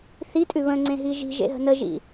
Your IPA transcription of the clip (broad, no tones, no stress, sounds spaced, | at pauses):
θ i tʼ ʉ β ə̃ ŋ͡ǀ ẽ ɦ i ʒ i̤ ʒ ḛ ɦ ə̤ n ə ʒ ḭ